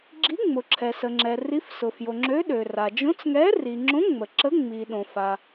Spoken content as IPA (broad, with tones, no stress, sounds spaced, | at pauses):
ɡ͡ǁ i˨˥ ŋ͡m ʊ˩ ǁʰ ɛ˩ s ə˩ ŋ͡ǁ ɛ˩ r i˨˥ f s ʊ˩ f j o˩ ŋ͡ǁ ø˨˥ ɗ ø˩ r a˩ d͡ʒ õ˨˥ t͡s ŋ ɛ˨˥ r i˩ ŋ͡ǁ õ˨˥ ŋ͡m ə˩ ǁ ə˨˥ ŋ͡m i˩ ɗ õ˩ f a˩